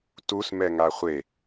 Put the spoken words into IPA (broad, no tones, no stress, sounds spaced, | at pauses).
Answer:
t u s m ɛ ŋ a χʷ e